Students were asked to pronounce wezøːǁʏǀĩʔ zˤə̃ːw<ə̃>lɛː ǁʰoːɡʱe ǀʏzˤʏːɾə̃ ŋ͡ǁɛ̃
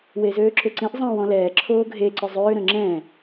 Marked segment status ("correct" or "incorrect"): incorrect